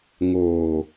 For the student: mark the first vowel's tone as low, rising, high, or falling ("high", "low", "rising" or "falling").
low